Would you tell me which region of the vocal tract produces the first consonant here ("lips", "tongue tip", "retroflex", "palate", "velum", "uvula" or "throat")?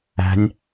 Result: tongue tip